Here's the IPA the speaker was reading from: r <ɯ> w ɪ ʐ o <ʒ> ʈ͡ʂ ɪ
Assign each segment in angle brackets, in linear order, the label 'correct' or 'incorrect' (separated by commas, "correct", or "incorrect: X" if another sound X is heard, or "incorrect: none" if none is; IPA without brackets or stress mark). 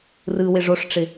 correct, incorrect: ʂ